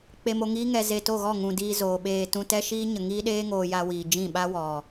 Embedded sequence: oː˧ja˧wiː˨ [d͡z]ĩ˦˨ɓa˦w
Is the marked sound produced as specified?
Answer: no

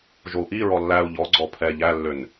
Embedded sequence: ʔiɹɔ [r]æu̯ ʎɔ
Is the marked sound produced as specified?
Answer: no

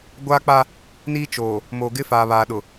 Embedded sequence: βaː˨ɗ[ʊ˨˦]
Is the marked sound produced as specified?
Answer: no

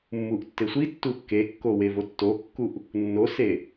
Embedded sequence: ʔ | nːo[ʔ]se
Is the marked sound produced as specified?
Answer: no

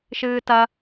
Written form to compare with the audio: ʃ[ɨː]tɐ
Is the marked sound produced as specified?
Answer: yes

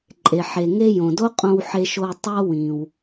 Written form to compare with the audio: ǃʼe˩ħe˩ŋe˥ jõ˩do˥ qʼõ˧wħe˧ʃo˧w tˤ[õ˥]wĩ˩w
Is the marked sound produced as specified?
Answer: no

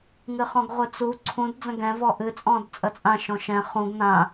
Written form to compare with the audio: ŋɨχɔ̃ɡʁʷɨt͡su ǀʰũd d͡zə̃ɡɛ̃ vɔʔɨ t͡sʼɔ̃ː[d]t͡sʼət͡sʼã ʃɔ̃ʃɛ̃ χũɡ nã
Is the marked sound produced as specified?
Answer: yes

